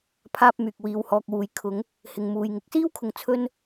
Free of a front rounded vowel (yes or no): no